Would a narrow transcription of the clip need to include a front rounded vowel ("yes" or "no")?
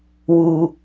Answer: no